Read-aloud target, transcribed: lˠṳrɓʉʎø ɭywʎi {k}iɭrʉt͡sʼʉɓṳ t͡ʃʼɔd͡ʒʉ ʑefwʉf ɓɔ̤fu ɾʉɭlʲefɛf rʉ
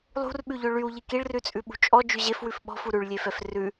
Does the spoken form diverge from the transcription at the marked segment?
no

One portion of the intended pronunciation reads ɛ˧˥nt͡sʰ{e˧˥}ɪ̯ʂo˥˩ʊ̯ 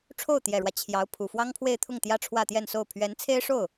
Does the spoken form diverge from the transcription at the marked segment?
yes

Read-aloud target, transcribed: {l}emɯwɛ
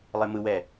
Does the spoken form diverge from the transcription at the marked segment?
yes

